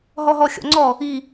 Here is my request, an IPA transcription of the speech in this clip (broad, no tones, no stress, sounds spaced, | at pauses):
ɦ ɔ ɦ ɔ xʲ ɔ̰ ŋ͡ǀ ɔ | i